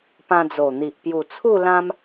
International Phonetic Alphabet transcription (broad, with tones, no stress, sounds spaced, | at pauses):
p ã˧ d͡z o˨˩ n̪ i˨ ʔ p j u˨˩ t͡sʰ u˥˧ l ã˦ m